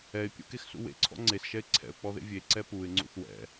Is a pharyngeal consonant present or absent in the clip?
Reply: absent